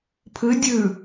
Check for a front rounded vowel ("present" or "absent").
absent